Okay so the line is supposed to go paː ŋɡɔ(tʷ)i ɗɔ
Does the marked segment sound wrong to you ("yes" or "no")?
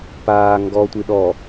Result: no